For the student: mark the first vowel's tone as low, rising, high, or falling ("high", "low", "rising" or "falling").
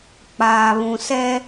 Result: low